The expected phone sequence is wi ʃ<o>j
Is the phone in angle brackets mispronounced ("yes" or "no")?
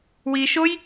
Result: no